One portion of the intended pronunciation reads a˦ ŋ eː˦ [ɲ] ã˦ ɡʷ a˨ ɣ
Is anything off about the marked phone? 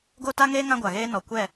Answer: yes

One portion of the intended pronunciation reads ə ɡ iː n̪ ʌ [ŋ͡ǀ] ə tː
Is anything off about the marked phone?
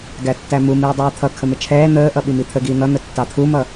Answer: yes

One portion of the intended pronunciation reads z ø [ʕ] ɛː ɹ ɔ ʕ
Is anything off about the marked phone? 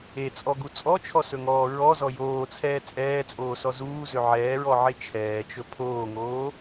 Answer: no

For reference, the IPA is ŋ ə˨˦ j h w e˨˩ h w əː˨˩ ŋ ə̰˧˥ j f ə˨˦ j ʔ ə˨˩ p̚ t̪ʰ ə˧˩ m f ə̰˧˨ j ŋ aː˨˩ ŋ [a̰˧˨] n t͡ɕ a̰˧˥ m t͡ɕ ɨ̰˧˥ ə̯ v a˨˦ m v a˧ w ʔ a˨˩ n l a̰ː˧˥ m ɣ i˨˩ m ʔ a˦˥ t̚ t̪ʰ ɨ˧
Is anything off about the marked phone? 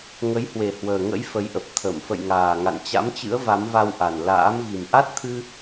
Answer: no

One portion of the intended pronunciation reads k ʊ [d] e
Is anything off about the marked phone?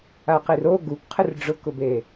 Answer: yes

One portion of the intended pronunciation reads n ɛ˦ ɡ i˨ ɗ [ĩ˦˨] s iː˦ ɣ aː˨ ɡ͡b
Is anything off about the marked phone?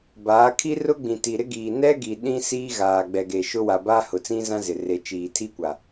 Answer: yes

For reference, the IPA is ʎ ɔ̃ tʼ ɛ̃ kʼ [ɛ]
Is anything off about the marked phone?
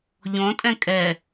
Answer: no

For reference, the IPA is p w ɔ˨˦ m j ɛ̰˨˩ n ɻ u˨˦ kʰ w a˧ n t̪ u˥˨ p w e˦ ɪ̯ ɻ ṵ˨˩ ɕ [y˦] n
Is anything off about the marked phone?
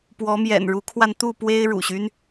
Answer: no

